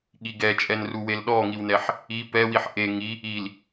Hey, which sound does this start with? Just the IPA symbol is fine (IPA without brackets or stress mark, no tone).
ɠ